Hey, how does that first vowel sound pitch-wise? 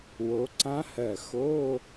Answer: rising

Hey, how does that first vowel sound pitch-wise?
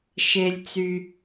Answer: low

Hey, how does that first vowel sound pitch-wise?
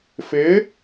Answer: rising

